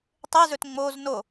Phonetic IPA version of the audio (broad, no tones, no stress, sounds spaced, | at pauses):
tˤ e z ɵ t ŋ͡m o z n o